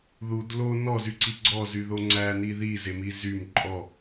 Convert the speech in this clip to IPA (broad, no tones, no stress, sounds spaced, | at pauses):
ð u d l o n ɔ z y ǀ i ɡ͡ǀ ɔ z y ð o ŋ͡ǀ æ n i ð i z e m i z y m ǃʼ ɔ